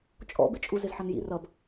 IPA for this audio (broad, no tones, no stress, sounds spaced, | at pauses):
t͡ʃʼ ɔ̰ b ɪ t͡ʃʼ u z ɪ z ħ ʌ n j ḭ r ʌ b